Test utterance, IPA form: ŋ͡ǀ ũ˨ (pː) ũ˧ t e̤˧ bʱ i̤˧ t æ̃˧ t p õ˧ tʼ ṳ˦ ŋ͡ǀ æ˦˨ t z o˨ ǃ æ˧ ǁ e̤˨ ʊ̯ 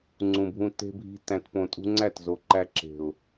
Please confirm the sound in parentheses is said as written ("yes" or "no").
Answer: no